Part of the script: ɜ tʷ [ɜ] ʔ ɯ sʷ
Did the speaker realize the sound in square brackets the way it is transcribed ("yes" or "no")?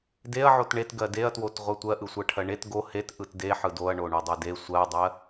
yes